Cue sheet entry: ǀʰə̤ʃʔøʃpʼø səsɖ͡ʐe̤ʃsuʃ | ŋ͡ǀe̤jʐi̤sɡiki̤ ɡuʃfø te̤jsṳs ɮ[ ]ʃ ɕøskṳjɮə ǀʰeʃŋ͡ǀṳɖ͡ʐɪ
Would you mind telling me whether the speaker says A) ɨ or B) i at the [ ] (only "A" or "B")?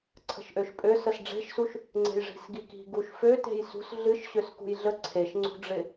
A